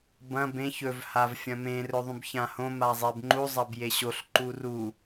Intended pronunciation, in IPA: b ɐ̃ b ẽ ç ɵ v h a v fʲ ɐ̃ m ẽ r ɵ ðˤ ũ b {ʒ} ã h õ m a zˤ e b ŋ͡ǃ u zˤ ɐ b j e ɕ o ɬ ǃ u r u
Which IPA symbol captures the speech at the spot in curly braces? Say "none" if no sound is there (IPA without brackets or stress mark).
ç